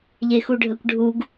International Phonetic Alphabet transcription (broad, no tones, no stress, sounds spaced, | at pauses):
ʎ e x u ɖʱ ə kʷ ɖʱ u ɡ